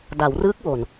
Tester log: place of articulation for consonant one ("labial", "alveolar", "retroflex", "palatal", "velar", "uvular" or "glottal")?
alveolar